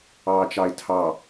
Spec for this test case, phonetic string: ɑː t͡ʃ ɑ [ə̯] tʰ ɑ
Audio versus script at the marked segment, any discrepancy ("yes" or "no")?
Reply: yes